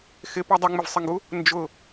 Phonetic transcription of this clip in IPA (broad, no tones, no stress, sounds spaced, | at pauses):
x ɪ p ʌ dˤ ʌ ŋ͡m ɪ v sˤ ɪ ŋ ɡ u | n d͡ʒ ʊ